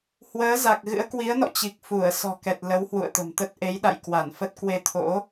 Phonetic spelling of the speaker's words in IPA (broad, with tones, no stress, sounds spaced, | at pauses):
h w əː˨˦ z a˨˩ k̚ ɣ ɨ̰˧˥ ə̯ k w i˨˦ ə̯ n ɔ̰˧˨ t͡ɕ i˨˩ k̚ f u˧˩ ə̯ s ɔ̤˨˩ k ɛ˨˩ t̚ l ə˨˦ w h w ṵ˧˨ ə̯ t̪ ə̤˨˩ m t̪ ə˦˥ t̚ ʔ e˨˦ j ɗ a̰˧˨ j k w a˧˩ n f ə˦˥ t̚ k w e˧ t̪ʰ o̰˧˥